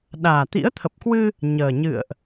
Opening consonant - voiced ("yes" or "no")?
yes